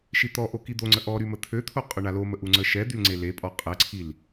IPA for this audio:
ʃ i t̪ ɔ ʔ o k i d̪ o ŋ͡ǀ ə ʔ ɔ ɾ y m ə t̪ʰ ø t̪ʰ o qʼ ø ɳ a l o m ə ʔ u ŋ͡ǀ ə ʃ ɛ d̪ y l ŋ͡ǀ e l e pʼ ɔ qʼ ɛ ǀʰ i l

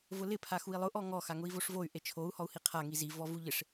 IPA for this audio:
v ʊ l ɪ pʰ a x u i̯ lˠ ʊ ʔ ɔ ŋ ɔ x a ŋ ʊ i̯ v o ʂ v o y̯ ʔ e t͡ʃʰ o u̯ h ɔ u̯ h i qʰ a ŋ i z i v ɔ v u ʎ ɪ ʂ

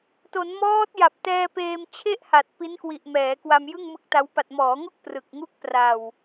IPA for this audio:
t o˩˦ n m ɔː˦˥ t̚ j a˨˩ p̚ t ɛː˧ p eː˧ m t͡ɕʰ e˥˩ ʔ h a˨˩ t̚ p i˦˥ n k w i˨˩ ʔ m ɛː˩˦ k w a˧ m j ɯ˥˩ ŋ m ɯ˦˥ k̚ t a˦˥ w p a˨˩ t̚ m ɔː˩˦ ŋ o˥˩ k̚ p r ɯ˨˩ k̚ ŋ u˥˩ k̚ p r a˨˩ w

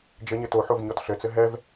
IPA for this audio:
d͡ʒ ɘ ɲ ɘ t o ħ o v ɲ ɔ t ɬ ɘ t͡s ɘ ɦ ɛ v

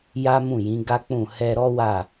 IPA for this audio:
j a˦ m ũ˦˨ j ĩ˨˦ ɡ a˦ k͡p ũ˦˨ h ɛ˧ ɾ ɔ˦ w a˦˨

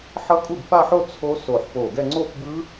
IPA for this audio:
ħ ʌ˦˥ kʼ u˥˩ b f a˥˧ ħ o˥˧ t͡sʰ o˦˥ s o˧˩ ħ p o˧˩ ɡ ɛ˥˧ ŋ͡ǀ o˥˧ p b ɯ˦˥

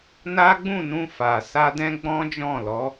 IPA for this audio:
n a˦ ɡ͡b ũ˦˨ n ũ˧ f a˨ s a˧ d ɛ̃˧ ɡ͡b ɔ̃˦ d͡ʒ ɔ̃˦˨ l ɔ˨˦

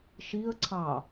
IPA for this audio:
ʃ i ə̯ ǀʰ ɑ

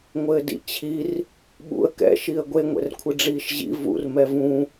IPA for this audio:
ŋʷ ɘː d ḭ t͡ɕʰ i r | ɓ ṵ ə̯ k ɛ̰ ʃ i ə̯ ɡʷ e ŋʷ ɛ̰ r kʷʰ ɨ ɖ͡ʐ iː ʃ ʑ ḭ v ṵ r m ɛ v ũ

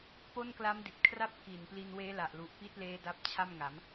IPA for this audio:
p o˥˩ n k l a˦˥ m d i˨˩ t̚ kʰ r a˥˩ p̚ k iː˨˩ n p l i˧ n w eː˦˥ l a˨˩ ʔ l u˨˩ ʔ p i˦˥ t̚ l eː˦˥ d a˦˥ p̚ t͡ɕʰ a˥˩ m ŋ a˩˦ m

